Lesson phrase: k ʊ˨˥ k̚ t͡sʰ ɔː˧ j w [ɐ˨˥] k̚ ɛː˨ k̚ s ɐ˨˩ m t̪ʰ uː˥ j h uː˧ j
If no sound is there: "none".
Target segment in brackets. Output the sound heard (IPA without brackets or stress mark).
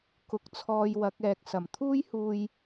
ɐ˨˥